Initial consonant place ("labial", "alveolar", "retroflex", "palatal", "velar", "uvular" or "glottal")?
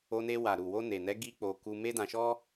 alveolar